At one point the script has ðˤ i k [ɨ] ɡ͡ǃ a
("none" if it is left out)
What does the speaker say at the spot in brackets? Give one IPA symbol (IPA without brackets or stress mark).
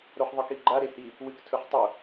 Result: i